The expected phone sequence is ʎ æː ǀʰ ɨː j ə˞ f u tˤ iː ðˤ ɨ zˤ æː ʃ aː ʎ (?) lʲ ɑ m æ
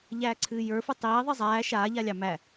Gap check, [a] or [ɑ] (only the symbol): a